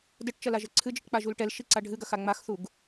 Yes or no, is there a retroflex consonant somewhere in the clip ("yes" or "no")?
yes